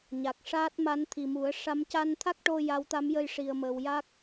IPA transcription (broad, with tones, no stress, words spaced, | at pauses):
ɲa˨˩k̚ʂaː˦˥t̚ma˧˥n t̪ʰi˨˩mu˨˩˦ə̯ʂa˧˥m ca˧nt̪ʰa˦˥k̚ʈo˧ ja˧˥wt̪a˧˥mjə˧j ʂi˧ə̯mə˧w ja˦˥k̚